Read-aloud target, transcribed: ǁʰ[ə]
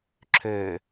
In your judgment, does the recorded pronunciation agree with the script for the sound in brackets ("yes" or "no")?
no